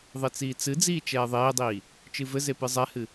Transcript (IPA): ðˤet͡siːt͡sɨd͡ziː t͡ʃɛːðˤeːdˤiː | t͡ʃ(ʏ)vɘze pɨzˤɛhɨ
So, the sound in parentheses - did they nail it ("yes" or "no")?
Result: no